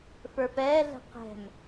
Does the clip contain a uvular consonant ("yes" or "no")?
yes